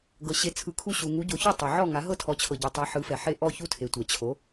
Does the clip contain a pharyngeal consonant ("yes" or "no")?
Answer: yes